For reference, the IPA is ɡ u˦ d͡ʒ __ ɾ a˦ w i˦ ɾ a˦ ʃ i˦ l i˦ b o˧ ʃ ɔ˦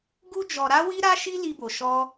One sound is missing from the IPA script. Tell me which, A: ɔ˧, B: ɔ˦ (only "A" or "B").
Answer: A